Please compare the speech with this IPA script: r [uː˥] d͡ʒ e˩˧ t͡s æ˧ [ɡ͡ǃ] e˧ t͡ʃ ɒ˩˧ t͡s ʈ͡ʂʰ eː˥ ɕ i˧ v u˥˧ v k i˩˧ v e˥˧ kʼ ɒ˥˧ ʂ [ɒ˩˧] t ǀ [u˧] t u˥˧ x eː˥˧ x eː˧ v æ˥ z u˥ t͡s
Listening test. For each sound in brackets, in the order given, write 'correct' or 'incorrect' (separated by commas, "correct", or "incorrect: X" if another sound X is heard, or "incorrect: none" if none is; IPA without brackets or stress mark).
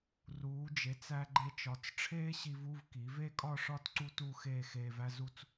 incorrect: uː˩˧, correct, incorrect: ɒ˥˧, incorrect: u˥